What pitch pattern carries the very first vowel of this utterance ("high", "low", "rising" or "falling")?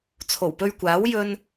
low